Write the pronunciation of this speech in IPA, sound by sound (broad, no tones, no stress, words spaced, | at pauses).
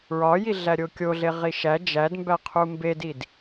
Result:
ɹɒjiɮæɾʲo kʲoɮeʁi ʃæ d͡ʒædmbæqʰu mbedid